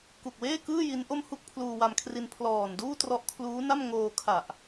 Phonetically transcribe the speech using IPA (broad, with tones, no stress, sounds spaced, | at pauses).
k u˨˩ k̚ w eː˥˩ k ɯː˥˩ j i˦˥ n ʔ o˥˩ m h u˥˩ k̚ pʰ l uː˧ w a˧ m kʰ r i˧ n pʰ l ɔː˨˩ n d uː˥˩ t r ɔ˦˥ ʔ kʰ l uː˦˥ n a˥˩ m ŋ oː˧ kʰ a˨˩ ʔ